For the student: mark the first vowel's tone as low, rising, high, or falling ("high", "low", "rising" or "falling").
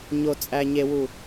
low